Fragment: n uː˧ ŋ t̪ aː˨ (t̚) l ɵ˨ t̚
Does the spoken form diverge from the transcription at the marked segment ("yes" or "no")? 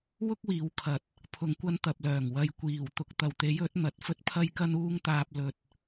yes